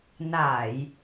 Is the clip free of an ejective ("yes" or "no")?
yes